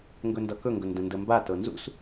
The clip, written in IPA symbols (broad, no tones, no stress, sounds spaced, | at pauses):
ŋ ɡ ɵ n d ʌ k ɵ ŋ ɡ ɵ n d ə̃ n d ə m b a t ɤ n z ṵ s